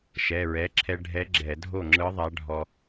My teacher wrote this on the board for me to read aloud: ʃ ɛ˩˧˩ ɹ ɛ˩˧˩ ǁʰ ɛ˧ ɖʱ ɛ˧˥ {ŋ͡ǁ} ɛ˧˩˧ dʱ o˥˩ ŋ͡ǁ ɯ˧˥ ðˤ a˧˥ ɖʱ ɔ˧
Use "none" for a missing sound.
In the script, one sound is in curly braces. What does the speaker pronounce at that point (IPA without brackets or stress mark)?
ɡ͡ǁ